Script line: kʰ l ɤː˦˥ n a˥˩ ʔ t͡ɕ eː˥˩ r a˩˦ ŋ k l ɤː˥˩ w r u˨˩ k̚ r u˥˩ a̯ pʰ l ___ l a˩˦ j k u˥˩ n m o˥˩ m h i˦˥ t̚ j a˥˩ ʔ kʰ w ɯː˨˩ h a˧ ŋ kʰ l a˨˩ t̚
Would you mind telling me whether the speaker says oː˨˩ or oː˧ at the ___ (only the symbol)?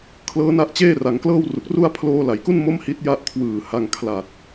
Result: oː˧